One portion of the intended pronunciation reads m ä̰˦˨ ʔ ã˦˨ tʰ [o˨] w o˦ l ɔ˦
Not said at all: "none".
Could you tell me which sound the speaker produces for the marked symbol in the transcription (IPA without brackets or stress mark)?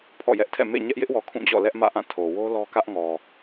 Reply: o˨